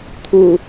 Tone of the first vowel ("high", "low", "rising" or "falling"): low